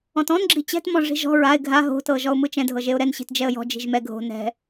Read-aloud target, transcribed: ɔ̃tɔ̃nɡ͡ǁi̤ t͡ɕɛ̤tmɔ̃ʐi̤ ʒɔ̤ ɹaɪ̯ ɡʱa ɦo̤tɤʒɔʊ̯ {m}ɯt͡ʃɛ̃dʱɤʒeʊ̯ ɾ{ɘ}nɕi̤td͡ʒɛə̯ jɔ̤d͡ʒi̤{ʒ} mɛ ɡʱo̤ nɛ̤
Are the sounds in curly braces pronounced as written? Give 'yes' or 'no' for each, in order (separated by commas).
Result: yes, no, yes